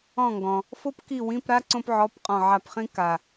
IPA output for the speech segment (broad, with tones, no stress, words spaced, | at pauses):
ɔ̃˦˨ŋɡɔ̃˨ | fo˥pki˦˨wĩ˧˥˧pɾa˥ ǀõ˥pʕɔ˧˥˧pqʼɔ̃˦˨ ʕa˦˨pχĩ˥ka˨